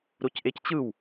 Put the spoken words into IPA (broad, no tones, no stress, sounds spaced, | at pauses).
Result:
ɾ o c ʔ e c t͡ɕ ɯ w